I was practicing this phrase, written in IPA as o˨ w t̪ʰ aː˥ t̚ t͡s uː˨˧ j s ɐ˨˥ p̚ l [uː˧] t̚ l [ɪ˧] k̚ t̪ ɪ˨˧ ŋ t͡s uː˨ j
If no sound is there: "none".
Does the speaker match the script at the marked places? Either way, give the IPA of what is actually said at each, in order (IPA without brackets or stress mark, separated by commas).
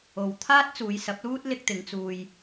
uː˥, ɪ˧